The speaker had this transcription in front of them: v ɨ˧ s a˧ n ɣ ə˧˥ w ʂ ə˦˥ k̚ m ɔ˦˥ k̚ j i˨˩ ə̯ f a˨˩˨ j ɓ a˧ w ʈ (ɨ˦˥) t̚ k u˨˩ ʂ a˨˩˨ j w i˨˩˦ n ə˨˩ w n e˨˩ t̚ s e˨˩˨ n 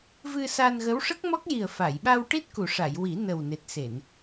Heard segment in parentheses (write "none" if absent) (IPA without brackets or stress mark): i˦˥